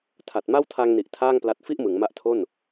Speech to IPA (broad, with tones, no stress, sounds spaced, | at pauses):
tʰ a˨˩ t̚ m a˥˩ w tʰ a˧ ŋ n i˨˩ ʔ tʰ aː˥˩ ŋ p l a˦˥ t̚ f i˥˩ ʔ m ɯ˩˦ ŋ m a˦˥ ʔ tʰ o˥˩ n